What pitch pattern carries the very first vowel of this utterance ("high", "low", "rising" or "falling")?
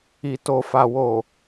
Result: low